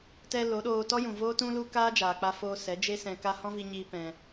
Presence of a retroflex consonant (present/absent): absent